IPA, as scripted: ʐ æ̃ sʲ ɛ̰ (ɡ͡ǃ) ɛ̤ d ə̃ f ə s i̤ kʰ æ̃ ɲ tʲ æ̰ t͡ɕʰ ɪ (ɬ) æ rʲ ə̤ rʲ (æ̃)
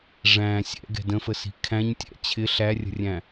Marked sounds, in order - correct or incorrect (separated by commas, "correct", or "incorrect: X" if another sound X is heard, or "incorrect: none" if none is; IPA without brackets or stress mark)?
incorrect: ɡ, correct, correct